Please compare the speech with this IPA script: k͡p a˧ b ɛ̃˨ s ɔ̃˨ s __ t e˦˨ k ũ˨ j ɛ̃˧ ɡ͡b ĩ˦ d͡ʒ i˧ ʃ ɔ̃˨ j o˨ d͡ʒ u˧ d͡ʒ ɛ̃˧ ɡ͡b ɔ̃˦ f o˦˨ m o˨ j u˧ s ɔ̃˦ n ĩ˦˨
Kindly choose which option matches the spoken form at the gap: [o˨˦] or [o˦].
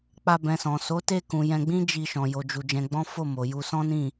o˨˦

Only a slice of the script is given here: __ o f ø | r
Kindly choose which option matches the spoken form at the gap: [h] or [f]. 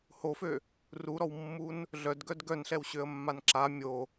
h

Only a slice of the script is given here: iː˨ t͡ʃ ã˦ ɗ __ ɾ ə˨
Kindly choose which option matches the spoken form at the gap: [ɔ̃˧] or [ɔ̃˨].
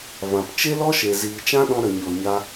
ɔ̃˧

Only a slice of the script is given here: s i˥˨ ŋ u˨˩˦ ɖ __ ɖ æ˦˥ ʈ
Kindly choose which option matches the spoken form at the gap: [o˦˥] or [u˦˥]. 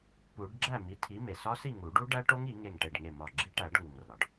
u˦˥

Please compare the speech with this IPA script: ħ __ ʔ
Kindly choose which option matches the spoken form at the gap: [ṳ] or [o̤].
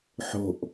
o̤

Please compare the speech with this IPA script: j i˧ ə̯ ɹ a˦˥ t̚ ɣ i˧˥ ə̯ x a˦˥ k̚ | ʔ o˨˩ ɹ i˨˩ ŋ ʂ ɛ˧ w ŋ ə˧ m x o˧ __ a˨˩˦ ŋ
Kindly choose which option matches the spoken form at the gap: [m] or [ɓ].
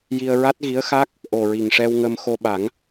ɓ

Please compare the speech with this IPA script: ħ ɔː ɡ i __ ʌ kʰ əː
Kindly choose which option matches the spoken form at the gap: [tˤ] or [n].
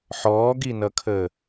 n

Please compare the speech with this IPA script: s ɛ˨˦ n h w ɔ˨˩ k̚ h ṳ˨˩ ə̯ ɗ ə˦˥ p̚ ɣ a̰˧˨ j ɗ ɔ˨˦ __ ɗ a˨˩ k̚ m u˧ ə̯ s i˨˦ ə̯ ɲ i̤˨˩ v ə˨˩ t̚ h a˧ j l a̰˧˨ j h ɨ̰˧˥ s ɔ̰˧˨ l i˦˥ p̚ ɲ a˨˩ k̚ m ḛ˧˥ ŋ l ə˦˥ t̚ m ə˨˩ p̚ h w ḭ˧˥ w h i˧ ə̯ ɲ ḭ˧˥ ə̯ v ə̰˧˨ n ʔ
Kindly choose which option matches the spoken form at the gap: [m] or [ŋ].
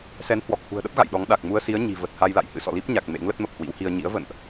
ŋ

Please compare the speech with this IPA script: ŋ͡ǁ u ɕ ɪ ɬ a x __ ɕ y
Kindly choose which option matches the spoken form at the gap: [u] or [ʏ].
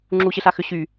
ʏ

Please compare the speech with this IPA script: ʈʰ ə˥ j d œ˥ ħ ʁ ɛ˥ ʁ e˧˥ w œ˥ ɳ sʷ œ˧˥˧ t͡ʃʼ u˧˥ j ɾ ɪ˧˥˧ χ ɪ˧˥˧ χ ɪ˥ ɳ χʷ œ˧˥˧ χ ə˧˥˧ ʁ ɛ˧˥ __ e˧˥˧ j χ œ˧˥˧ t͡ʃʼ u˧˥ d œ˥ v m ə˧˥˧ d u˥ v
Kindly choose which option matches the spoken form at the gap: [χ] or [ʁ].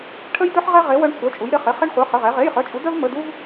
ʁ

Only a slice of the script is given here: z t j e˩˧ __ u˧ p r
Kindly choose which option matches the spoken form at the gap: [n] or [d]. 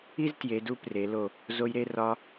d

